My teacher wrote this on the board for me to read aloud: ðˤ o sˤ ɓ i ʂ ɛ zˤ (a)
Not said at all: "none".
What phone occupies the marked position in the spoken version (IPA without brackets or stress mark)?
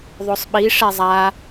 a